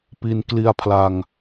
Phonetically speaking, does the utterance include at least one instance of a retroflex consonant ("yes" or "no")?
no